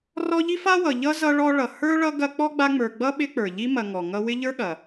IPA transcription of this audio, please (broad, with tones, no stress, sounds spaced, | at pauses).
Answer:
r ɔ˦ ʎ i˥ f a˥ w ʌ˨ ʎ ʌ˥ z ʌ˥ ɭ ɔ˥ ɭ ʌ˨ h ə˞˥ ɭ ʌ˦ ɡ ɐ˦ k͡p ɔ˥ ɡ͡b a˦ ŋ͡m ə˞˨ ɡ͡b ʌ˥ ɓ ɪ˦ k͡p ə˞˩ ʎ i˦ m ɐ˨ ŋ ɔ˩ ŋ ʌ˦ w ɪ˥ ʎ ə˞˥ ɠ ɐ˩